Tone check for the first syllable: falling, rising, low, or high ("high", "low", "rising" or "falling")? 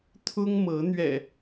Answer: high